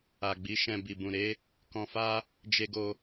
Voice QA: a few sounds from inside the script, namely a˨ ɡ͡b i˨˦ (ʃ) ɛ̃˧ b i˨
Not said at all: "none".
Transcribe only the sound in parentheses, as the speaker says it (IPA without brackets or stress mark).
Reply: ʃ